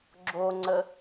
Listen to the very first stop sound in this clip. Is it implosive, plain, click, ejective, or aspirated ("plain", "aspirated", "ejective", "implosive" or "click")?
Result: click